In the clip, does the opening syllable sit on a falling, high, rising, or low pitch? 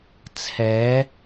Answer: rising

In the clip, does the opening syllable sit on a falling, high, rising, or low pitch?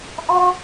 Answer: high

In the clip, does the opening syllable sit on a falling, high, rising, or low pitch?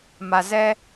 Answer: low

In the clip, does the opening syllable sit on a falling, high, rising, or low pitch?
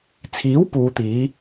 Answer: rising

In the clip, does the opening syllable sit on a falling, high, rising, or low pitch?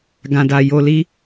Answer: low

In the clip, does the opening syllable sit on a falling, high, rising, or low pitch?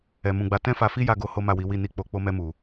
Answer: low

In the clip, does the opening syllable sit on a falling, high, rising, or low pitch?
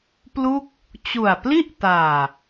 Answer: falling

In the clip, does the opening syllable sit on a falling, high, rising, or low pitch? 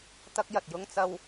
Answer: high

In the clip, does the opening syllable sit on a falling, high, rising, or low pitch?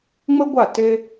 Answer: high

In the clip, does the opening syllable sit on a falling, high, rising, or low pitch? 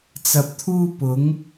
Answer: low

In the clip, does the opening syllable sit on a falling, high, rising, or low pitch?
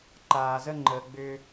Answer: low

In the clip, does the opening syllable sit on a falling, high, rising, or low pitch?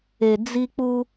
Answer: low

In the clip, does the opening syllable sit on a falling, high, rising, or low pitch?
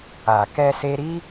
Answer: low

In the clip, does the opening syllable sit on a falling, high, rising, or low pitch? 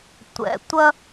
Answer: low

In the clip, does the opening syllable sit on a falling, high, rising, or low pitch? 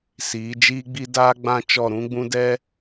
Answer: rising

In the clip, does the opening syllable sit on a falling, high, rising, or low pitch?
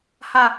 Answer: low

